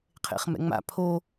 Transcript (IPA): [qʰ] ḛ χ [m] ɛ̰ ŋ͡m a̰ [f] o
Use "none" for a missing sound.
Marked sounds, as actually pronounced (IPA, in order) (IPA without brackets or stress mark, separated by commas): qʰ, m, pʰ